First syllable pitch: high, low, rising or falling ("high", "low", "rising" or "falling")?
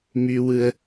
high